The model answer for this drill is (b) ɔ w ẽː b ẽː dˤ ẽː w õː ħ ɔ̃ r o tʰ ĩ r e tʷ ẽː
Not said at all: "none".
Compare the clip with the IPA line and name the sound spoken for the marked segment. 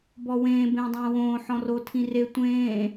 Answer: b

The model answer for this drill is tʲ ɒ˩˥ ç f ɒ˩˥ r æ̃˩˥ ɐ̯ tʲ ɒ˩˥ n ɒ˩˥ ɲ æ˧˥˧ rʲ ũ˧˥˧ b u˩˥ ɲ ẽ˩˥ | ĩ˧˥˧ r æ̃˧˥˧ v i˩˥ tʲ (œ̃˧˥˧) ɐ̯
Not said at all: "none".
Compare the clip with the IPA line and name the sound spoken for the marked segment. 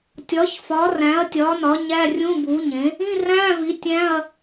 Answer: æ̃˧˥˧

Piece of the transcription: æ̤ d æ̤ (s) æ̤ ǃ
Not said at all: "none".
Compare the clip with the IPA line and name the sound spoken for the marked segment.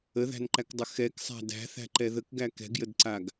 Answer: θ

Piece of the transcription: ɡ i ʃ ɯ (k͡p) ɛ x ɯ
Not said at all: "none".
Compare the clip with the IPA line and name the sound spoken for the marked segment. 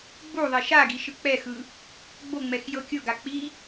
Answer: k͡p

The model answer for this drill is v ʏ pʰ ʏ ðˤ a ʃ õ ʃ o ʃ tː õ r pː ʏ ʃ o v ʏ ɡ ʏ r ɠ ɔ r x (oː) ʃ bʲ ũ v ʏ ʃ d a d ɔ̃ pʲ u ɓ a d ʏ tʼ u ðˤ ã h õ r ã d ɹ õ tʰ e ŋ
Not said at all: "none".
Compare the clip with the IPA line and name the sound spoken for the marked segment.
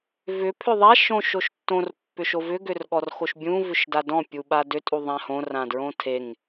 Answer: o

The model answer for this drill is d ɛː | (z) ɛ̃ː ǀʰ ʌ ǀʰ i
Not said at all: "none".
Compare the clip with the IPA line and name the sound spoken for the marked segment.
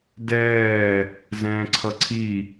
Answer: z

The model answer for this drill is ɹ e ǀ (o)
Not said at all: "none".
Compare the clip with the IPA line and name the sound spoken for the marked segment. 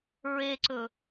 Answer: ɵ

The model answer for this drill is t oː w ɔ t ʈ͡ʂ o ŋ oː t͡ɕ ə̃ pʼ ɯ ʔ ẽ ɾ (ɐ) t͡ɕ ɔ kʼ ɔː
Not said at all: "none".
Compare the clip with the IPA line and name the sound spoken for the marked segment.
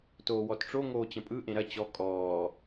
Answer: ɐ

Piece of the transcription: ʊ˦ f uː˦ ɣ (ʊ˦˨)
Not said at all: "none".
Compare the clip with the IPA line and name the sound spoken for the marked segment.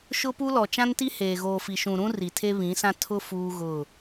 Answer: ʊ˦˨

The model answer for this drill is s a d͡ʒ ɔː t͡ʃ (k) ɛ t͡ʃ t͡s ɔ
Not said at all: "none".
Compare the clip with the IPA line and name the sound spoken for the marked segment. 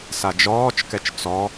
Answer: k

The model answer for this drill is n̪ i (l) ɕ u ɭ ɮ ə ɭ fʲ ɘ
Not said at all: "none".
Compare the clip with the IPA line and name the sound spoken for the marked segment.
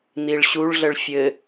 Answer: ɭ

